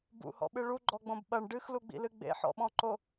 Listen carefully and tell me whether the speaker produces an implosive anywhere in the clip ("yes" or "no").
yes